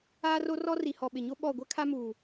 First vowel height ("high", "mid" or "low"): low